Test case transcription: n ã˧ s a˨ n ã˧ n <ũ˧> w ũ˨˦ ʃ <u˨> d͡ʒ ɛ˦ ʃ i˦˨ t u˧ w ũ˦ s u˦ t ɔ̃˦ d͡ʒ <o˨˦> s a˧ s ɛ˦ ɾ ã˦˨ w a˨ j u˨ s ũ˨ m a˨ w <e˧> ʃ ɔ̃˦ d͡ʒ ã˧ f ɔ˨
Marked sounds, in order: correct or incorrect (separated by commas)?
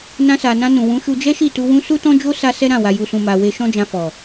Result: incorrect, incorrect, incorrect, correct